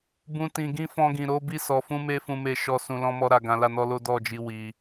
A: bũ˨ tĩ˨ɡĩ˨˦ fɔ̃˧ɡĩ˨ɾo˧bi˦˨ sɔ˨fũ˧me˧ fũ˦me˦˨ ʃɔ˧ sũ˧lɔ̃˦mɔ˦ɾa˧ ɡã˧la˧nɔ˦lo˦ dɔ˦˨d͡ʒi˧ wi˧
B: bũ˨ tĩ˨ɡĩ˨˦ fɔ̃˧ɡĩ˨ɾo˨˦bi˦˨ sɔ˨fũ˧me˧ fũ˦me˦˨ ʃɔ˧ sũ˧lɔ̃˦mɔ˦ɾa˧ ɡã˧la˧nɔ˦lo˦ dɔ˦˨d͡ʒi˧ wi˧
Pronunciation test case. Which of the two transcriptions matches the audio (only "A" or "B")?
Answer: B